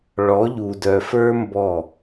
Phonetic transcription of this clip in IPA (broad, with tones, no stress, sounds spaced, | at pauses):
ɭ ɔ˨˦ ʎ u˨ d œ˨ f ə˞˦ m b ɔ˦˨